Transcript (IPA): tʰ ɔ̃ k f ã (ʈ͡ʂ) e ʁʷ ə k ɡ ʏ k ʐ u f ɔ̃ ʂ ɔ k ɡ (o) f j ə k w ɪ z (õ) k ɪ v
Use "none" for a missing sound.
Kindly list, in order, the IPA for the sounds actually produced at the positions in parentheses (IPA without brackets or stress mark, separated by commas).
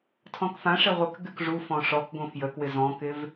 ʂ, õ, ɔ̃